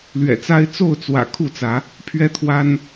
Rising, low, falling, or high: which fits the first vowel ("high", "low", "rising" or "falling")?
low